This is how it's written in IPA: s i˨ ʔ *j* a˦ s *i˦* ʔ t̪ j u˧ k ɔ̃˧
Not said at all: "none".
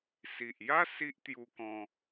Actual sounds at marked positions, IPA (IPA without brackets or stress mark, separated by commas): j, i˦